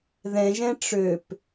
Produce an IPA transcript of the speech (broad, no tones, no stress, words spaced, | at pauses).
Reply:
ðɛ̃ʒɛ̃ ʈ͡ʂøp